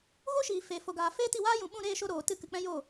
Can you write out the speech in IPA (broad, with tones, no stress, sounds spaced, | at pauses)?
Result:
ɣ o˦ ʃ iː˨ f eː˨ f o˨ ɡ aː˨ f eː˦ t i˦˨ w aː˦ j ũ˨ ɓ ũ˦˨ ɾ eː˦˨ ʃ o˧ ɾ oː˨ t ɨ˧ k ɨ˨ k͡p ɛ̃˦ j o˦˨